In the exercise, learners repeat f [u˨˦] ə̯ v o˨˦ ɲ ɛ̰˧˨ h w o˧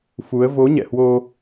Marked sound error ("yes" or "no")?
no